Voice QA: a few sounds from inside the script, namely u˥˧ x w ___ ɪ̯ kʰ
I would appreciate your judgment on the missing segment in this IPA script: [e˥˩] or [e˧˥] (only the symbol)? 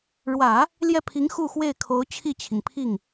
e˥˩